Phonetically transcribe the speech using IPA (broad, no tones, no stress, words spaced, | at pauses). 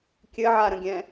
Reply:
kʲɘʕaɾə̃ɡʲɛ̃